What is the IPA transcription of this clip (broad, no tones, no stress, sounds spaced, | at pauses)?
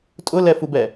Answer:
tʼ ʊ l ɛ f u b ɛ